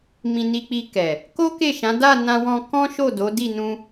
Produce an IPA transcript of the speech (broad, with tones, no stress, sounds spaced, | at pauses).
m ĩ˧ n i˧ k͡p i˧ k ɛ˨ | k o˦ k e˦˨ ʃ ã˨˦ d a˦˨ n ã˧ w ɔ̃˧ k ɔ̃˦ ʃ o˦˨ d o˨˦ d i˦˨ n ũ˧